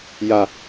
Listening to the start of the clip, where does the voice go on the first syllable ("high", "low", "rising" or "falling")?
high